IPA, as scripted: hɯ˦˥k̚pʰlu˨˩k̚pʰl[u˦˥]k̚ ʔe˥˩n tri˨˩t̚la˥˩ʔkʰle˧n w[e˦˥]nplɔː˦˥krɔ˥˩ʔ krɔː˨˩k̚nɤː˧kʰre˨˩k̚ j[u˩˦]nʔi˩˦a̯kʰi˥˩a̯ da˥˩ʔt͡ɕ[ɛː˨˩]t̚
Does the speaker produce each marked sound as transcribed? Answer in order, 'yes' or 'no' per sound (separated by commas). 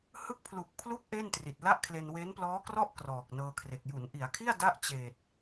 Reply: yes, yes, yes, no